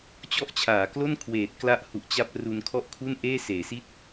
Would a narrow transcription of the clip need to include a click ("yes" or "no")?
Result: no